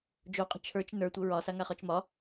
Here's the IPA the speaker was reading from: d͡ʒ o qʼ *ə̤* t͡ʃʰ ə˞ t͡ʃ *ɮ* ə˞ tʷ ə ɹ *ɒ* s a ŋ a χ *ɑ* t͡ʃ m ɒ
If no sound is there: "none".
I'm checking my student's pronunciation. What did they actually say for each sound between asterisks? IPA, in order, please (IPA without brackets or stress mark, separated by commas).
ə̤, n, ɒ, ɒ